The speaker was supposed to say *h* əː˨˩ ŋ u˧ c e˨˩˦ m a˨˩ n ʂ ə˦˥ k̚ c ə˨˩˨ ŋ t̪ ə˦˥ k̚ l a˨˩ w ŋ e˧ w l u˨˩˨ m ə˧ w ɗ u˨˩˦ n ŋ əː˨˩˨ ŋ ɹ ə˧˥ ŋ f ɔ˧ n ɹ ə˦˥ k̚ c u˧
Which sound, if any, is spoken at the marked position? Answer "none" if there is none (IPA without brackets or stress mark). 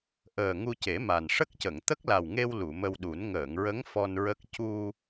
ʔ